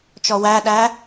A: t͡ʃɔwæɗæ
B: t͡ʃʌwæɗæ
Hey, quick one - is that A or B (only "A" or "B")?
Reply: A